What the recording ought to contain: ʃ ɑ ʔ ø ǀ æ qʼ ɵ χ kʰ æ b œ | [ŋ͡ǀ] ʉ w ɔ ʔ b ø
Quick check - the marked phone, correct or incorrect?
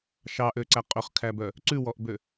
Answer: incorrect